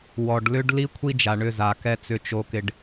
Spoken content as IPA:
w ɔ˨ ɖ l ʏ˦ ɖ l i˦ kʷʰ i˦ d͡ʒ a˨ ɳ ʏ˦˨ z a˨ k ɛ˦ t͡s ʏ˦ t͡ʃ o˦ k ɪ˦ ɖ

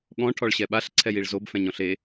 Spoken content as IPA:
ɠ ɔ̃ ʈʰ ɔ ɭ ɕ ɛ ɓ a ɬ ǀʰ ɛ j i ɭ z o b f ɛ̃ ɲ ɔ̃ ɬ e

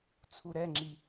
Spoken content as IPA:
t͡sʰ u ɾ ɛ ŋ͡ǁ i

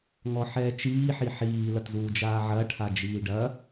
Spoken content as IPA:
ŋ ɔ ħ ɛː t͡ʃ iː ħ i ħ iː l ɐ t z uː d͡ʒ aː ʕ ɐ ʈʰ a d͡ʒ iː ɖ ɐ

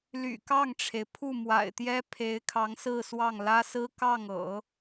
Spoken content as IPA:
l y̰˨˩ k ɑ˥˩ ŋ ʈ͡ʂʰ e˩ ɪ̯ pʰ u˥˩ m w a̰˨˩ ɪ̯ t̪ j ɛ˥ pʰ e˧˥ ɪ̯ kʰ ɑ˧˥ ŋ s ɹ̩˥˧ s w ɑ˥˩ ŋ l ä˥ s ɹ̩˥ k ɑ˥˩ ŋ ɤ̰˨˩˦

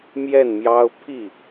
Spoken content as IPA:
m j ɛ˥˩ n m j ɑ˥ ʊ̯ pʰ i˥˩

